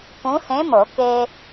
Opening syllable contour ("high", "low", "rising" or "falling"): rising